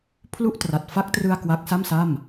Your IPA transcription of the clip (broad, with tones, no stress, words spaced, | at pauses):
pʰlu˥˩ʔtra˨˩t̚ fa˦˥k̚trɯ˧a̯ kwa˦˥k̚sa˥˩msa˥˩m